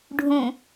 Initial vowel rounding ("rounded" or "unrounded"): rounded